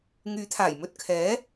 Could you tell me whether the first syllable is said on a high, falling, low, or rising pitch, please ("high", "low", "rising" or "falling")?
rising